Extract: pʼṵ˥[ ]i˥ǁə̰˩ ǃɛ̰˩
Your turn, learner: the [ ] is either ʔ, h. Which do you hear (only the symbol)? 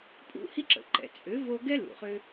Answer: h